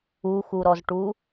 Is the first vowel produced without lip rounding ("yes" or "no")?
no